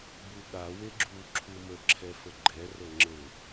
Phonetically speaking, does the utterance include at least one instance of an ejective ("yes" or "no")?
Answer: no